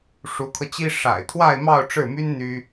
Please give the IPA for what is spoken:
ʂ u˧˥ kʰ ɤ˧ t͡ɕ i˥ ʂ a̰˨˩ ɪ̯ t̪ʰ w a˥˧ ɪ̯ m ɑ˥˧ ʊ̯ ʈ͡ʂ ɻ̩˥˩ m y˥ n n̪ y˥

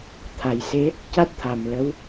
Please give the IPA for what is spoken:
t̪ʰ a˨˩ j s e˧˥ | c a˦˥ t̚ t̪ʰ a˨˩ m l ə˧˥ w

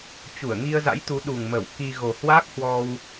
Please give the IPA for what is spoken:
t͡ɕ u˧˩ ə̯ ŋ i˧ ə̯ z a̰˧˥ j t̪ u˨˦ ɗ u˨˩ ŋ m ə˧˩ w k i˧ ɣ o˨˩ h w aː˦˥ k̚ h w ɔ˧ w

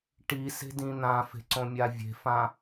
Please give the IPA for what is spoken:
ʈ i s e̤ d ĩ n̪ ã f e̤ ǀ õ mʲ a vʲ e̤ f ã

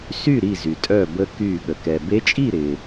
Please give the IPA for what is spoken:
s y˥˨ ɾ i˧˩ z y˩ tʼ œ˧˩ b ə˧˥ k y˧˩ ɠ ə˩ k ɛ˩ b e˧˥ t͡ʃʼ i˥˨ ɾ ɪ˩

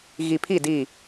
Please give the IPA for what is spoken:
ɣ i˨ pʰ i˦˨ d i˦˨

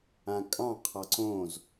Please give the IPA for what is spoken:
ã kʼ ɑ̃ qʰ ɑ ǀ õ z

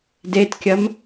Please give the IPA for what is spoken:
d e t kʲ ɐ m

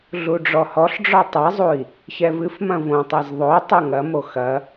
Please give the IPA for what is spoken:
ɮ u ɖ͡ʐ ɔ h ɔ ɬ ɖ͡ʐ ɔ tˤ ɛ zˤ u i̯ | ç ɛ v ɨ f m ɐ̃ v õ tˤ ɛ z ðˤ o tˤ u ŋ ɐ m o x ɐ

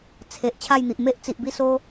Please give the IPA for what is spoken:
t͡sʰ e˨ ʔ t͡ɕʰ a˥˧ j n̪ i˨ ʔ m e˦ ʔ t͡s i˨ ʔ b i˥˧ s o˦

